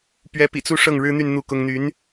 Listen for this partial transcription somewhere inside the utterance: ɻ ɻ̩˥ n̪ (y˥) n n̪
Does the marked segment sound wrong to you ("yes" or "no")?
yes